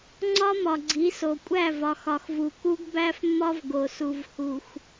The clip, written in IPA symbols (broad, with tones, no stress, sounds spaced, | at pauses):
ŋ͡ǀ ɒ˦ m ɒ˨ ɡ͡ǀ i˨˦ s o˨ kʷʼ æ˦˨ v ɒ˨ x ɒ˨ x v u˨ k u˦ ɡ b æ˦ f mː ɒ˦ v ɡ o˨ s u˨ v h u˨ x